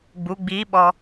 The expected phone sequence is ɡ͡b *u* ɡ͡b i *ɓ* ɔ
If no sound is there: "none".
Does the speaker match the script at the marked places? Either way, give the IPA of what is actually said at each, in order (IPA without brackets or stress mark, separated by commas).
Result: u, ɓ